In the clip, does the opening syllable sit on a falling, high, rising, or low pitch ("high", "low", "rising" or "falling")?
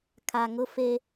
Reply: low